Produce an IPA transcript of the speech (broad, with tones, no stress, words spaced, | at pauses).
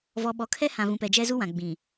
vɔ˨ɓɔ˨kʰɛ˦ hã˨vũ˨pɛ˨d͡ʒɛ˦ zu˦wã˨ɡ͡bĩ˨